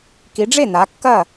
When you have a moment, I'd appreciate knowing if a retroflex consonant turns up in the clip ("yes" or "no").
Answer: yes